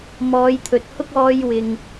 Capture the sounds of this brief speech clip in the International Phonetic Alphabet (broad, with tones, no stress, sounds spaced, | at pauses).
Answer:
m ɔː˨˧ j t̪ʰ ɵ˨ t̚ h ʊ˥ k̚ ɔː˧ j w ɪ˨ ŋ